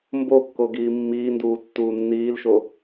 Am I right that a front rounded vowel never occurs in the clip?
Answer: yes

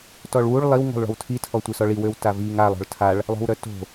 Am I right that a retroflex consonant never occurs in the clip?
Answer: no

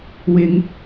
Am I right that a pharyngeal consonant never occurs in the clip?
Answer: yes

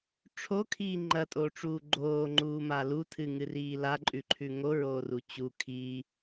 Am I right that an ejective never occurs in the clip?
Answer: no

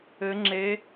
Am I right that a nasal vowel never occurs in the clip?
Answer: yes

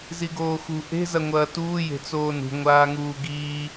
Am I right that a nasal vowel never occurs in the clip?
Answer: yes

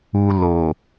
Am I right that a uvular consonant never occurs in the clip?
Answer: yes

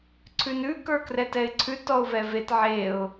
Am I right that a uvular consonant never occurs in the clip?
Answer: yes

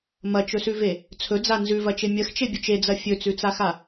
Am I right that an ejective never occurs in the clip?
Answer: yes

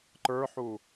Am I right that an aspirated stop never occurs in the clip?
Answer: yes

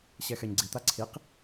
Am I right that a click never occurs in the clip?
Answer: no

